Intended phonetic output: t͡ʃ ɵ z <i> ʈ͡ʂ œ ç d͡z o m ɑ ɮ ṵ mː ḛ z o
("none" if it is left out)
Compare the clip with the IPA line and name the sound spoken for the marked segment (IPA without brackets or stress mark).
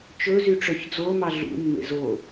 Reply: y